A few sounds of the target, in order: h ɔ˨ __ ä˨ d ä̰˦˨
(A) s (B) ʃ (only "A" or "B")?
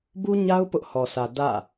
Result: A